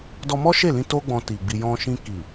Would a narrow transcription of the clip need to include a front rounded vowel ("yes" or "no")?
no